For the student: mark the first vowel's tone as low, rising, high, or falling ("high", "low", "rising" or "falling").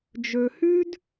low